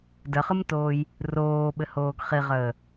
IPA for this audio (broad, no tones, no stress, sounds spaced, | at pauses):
d ə χ ɯ m t oː j | r oː ɓ ɘ h oː ɡ χ i ʁ əː